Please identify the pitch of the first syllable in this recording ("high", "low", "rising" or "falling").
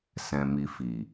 low